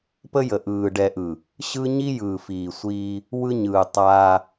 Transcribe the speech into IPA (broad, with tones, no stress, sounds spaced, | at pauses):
p ə˦ j ə˨ ʔ ɯː˨ ɖ ɛ˨ ʔ ɯ˨ | ɕ ɯ˦ ɲ i˦ j ɯː˨ f iː˨ sʷ iː˦ | w ɯ˦ ɲ ɯː˨ tˤ aː˦